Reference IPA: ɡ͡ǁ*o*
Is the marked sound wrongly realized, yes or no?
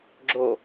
no